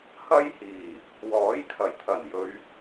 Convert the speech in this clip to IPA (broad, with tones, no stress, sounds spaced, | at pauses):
h ɐ˥ j h iː˨˩ | w ɔː˨˥ j kʰ ɐ˨˩ j t̪ʰ ɐ˨˩ n j ɵ˨˧ ɥ